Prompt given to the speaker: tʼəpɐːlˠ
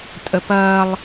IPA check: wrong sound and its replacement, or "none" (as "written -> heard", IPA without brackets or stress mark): none